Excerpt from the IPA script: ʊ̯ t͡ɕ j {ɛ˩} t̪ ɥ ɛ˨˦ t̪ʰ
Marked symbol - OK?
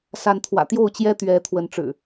no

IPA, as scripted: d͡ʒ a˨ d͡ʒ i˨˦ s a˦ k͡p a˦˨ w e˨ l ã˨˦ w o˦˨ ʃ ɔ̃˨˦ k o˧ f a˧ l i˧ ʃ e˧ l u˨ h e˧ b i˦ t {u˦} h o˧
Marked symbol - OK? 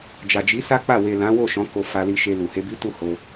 no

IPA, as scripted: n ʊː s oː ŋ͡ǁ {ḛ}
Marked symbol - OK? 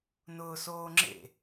yes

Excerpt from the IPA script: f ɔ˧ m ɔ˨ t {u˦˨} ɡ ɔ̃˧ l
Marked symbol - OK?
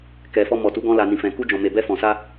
no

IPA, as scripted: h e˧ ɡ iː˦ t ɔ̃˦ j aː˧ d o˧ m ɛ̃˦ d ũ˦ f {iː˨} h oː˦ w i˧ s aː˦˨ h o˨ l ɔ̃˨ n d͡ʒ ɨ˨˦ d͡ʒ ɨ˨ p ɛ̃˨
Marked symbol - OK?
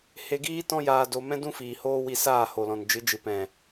yes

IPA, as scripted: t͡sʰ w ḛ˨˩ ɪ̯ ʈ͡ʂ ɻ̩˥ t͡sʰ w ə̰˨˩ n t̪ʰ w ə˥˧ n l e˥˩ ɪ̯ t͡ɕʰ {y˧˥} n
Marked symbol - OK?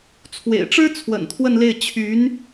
yes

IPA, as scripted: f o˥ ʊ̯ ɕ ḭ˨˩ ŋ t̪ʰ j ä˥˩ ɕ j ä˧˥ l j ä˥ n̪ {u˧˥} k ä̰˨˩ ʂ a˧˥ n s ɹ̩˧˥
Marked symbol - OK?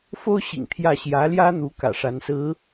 yes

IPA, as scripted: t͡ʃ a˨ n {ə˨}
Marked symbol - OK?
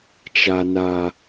no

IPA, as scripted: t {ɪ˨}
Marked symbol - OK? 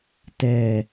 no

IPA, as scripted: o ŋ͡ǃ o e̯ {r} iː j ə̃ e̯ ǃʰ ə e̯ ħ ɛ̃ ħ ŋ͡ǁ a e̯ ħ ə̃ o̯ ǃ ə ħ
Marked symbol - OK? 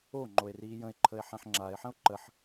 yes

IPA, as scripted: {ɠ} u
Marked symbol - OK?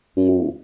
no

